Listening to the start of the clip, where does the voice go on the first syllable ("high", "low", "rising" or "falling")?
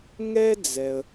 high